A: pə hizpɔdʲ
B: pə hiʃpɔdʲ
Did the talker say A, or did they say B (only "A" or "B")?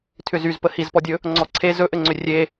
A